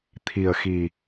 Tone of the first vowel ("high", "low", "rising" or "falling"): low